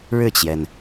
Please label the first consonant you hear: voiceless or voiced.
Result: voiced